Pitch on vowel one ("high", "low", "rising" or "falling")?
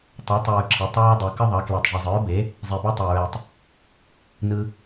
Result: rising